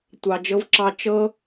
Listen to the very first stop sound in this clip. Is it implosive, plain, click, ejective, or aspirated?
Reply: plain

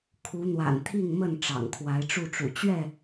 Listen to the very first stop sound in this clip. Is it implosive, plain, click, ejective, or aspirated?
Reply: aspirated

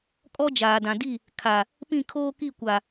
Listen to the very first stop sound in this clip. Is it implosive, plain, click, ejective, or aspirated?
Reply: ejective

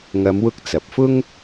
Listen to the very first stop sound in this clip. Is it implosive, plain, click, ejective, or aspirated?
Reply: plain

